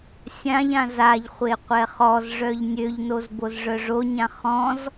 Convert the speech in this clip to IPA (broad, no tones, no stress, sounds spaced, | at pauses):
sʲ ã ʎ ã z a ʎ χʷ e qʷ ɛ χ ɔ z ʐ œ ʎ nʲ ø ʎ n o z b o z ʐ œ ʐ o ɲ ã χ ɔ̃ z